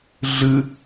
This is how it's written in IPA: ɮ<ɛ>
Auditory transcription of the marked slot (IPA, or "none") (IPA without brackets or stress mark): ɨ